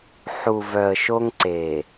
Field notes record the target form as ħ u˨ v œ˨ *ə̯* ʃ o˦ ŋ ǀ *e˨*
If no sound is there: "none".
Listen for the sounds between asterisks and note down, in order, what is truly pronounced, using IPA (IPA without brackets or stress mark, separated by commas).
ə̯, e˨